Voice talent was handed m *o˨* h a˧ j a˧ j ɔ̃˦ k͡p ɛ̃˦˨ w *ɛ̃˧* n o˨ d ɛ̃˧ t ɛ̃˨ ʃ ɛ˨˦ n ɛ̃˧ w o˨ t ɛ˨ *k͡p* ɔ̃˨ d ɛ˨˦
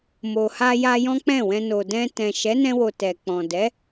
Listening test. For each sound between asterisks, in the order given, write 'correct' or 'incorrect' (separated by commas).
correct, correct, correct